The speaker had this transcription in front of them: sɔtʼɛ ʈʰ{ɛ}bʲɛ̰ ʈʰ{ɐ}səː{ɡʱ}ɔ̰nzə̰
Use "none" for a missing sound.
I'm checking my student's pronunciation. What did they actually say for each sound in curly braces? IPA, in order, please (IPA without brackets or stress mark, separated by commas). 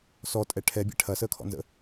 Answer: ɛ, ɐ, kʰ